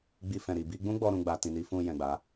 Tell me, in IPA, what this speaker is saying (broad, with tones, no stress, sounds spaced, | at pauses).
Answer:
ɡ͡b i˧ f ɛ̃˨ ɾ i˨ b i˧ ɡ͡b ũ˦ ɡ͡b ɔ˧ ɾ ũ˧ ɡ͡b a˨ t ĩ˨ n i˨˦ f ũ˧ j ɛ̃˨ ɡ͡b a˨˦